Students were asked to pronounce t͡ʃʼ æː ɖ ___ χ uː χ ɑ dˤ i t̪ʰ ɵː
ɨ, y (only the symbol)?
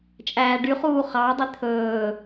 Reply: y